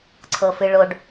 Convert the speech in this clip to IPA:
ǀʰ ɤ f ɨ ɭ o ɖ

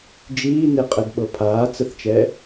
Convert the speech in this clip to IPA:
d͡ʒ iː n e qʼ ɛ d ɓ ɤ pʰ aː t͡s ə θ t͡ʃ ɛ

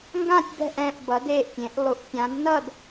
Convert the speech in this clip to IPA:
ŋ ɡ ã˧˩ tʲ b ɛ̤˧˩ ʔ ɛ̃ː˧˩ ʔ b ʌ˩˧ d eː˧˩ ʔ tʲ ẽ˩˧ ʔ lˠ u˩˧ ʔ tʲ ã˩˧ d n ʌ˧˩ d

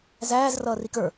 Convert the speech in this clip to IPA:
z æː z r ʌː r i k ə˞

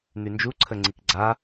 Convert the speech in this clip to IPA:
n̪ y n d͡ʒ u ǀʰ ə ŋ͡ǀ i k ɡ͡ǀ a

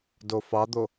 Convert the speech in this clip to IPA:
d o f ɑ d̪ o

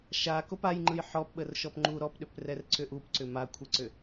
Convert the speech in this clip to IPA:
ʃ a k o p a j ŋ͡ǃ ɯ j ħ ɔ p ɓ ə r ʃ ɔ p ŋ͡ǃ u ɾ ɔ p ɗ ʏ p r ɛ r ǀ ʏ ʔ u p ǀ ʏ m a kʷʰ ə ǀ ʏ

